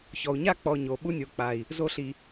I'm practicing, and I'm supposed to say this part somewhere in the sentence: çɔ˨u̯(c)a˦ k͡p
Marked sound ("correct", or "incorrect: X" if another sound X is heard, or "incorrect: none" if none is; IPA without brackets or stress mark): incorrect: ɲ